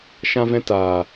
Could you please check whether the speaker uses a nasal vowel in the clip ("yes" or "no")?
yes